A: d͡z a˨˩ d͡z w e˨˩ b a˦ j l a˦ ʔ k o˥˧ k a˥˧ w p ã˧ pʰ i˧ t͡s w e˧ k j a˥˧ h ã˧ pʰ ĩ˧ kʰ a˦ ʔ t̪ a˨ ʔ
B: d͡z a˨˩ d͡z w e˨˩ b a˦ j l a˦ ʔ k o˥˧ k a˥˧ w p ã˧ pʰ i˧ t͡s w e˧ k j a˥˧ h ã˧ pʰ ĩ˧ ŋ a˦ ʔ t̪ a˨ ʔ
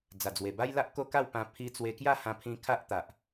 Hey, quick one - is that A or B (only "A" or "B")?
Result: A